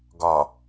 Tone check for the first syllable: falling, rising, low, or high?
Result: low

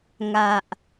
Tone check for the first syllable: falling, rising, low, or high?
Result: low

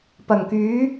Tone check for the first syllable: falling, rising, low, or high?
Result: low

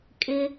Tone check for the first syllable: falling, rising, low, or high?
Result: low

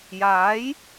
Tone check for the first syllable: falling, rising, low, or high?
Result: rising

